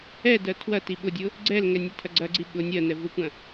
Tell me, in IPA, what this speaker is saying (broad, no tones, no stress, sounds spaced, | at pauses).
ɛ d ɜ tʰ w ɐ t i ɓ ʊ dʲ ʊ | ɡ͡ǀ ɛ l ŋ ɛ nʲ e tʰ ɐ ɡ͡ǀ ɐ ɡ͡ǀ i ɓ ʊ nʲ ɜ n ɛ v ʊ kʷ ɐ̃